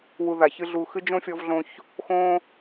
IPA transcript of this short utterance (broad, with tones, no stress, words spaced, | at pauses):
wu˧ða˨çɨ˦ ɮu˨ xɨ˦d͡ʒõ˦fʲɔ˧vɮõ˧ç | xõ˦